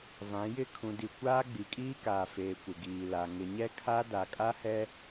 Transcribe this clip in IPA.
v ã˨˦ j ɪ˦˨ kʰ ũ˨ d i˨ kʷ aː˦ ɡ͡b i˨ kʼ iː˦ k aː˨ f eː˨ kʷ ɪ˨ ɡ iː˨ l a˨ ŋ ɪ˨ ɲ ɛ˦ kʰ a˦ d a˨ kʼ a˦ h ɛ˦

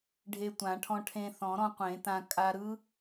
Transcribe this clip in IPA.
ɖʱ e˧ tʷ ã˨˩˦ ʈʰ ɔ̃˧ ʈʰ ẽ˧ θ ɔ̃˨˩˦ ɾ ɔ̃˧ qʷ ẽ˨˩˦ t ã˧ kʼ a˧ ɾ ɯ˦˥

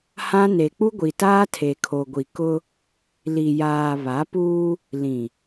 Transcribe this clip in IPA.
h ã˦ n e˨ k͡p u˦ ɡʷ i˨ t aː˦ tʰ e˨ kʰ o˨ ɡʷ i˨ k ʊ˦ | l i˨ j aː˨ β a˨˦ p uː˦ | l ĩ˨

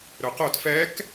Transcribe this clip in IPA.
ɾ ɵ q o t f ɛ k

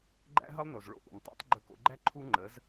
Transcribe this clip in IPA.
ɡ͡ǃ æ̰˥ ɦ ə˥ lˠ n o˩ z ɭ o̰˥˩ ʔ ṵ˩ n tˤ a̰˥ tˤ ɡ͡ǃ ɵ˧ k o̰˧ ɡ͡ǃ æ˥ ǃʰ u˥ ŋ͡ǃ ə˩˥ z

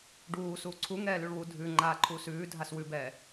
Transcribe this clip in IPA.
ɖ uː s uː ǀʰ u ŋ ɛː l ʉ ɭ w u dʱ ʉ ŋ͡ǃ aː ǃʰ uː s ʉː dʱ a s w ʉ b ɛː

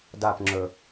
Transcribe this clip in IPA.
d a p ŋ͡ǁ ɵ

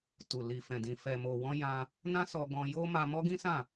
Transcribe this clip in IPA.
t u˨ l i˨ f ɛ̃˨ d ĩ˨ f ɛ˨ m o˨ w ɔ̃˧ j ã˧ | n ã˦ s ɔ˧ ɡ ɔ̃˧ j o˦ m a˧ m ɔ˦ ɡ ĩ˦ s ã˦˨

